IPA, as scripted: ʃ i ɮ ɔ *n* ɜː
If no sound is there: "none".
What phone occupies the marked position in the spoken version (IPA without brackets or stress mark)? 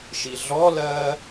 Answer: l